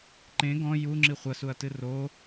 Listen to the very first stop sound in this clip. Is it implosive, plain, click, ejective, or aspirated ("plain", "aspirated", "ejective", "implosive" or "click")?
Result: click